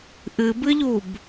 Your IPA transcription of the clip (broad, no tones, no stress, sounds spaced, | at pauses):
ʔ ɨ b ɨ ʎ u b